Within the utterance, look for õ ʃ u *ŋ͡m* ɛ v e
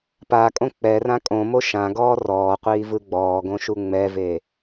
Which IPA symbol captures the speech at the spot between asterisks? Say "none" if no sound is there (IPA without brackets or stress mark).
ŋ͡m